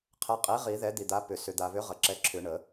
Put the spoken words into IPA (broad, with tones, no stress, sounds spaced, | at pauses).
qʰ ɛ˨˥ qʼ i˨˥ ʁ i˨˩˦ ð ɛ˨˥ d̪ i˨ d̪ a˨˥ p ʏ˨ s ʏ˨ d̪ a˨ β ʏ˨˥ ʁ ə˨ ǁ ɛ˨˥ ǁʰ ʏ˨˩˦ ɳ ə˨˩˦